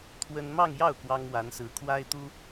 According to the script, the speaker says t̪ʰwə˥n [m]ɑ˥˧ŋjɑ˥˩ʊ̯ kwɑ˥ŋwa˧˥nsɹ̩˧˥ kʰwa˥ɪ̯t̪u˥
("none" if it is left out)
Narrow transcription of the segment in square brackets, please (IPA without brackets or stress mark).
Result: m